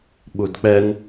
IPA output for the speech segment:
ɓ u d k͡p ɛ n

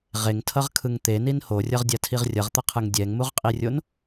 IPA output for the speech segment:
ʁ e ŋ tʰ ʌ ʁ kʰ ɯ ŋ t̪ e n i n h o rʲ ʌ ʁ dʲ a tʰ i ʁ rʲ ʌ ʁ t̪ ʌ qʰ ɯ ŋ dʲ ɛ ŋ m u ʁ qʼ i rʲ o n

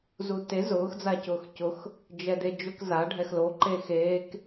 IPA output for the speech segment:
z u t e z ʊː x d͡z a c ʊː x c ʊ x | d͡ʒ ɛ d e d͡ʒ ʊ k z a ɖʱ ɛ x l o ǃ eː x eː k

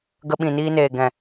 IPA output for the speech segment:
ɡ ə˧ ɓ ĩ˨ n iː˧ n eː˨ ɡ ɛ̃˨

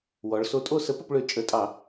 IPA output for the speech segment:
w ɔ˩˧ ɭ s o˨˥ tʼ o˥˨ s ə˨˥ p ə˥˨ p ɭ ø˧˩˧ t͡ʃʼ ə˧˩˧ tʼ ɑ˧˩˧

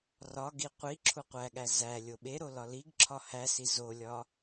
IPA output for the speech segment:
r ɒ ɡ i qʷ i ǁʰ u qʷ æ ɠ æ z æ lʲ o ɓ e ɾ o l ɒ l i ɡ ǁʰ ɒ h æ s i z o lʲ ɒ

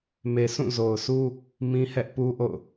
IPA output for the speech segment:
m e˨ s ũ˦˨ z o˨ ʊ̯ s u˦ | m ĩ˦ h ɛ˦ ʔ p u˦ ʔ o̰˦˨ ʊ̯

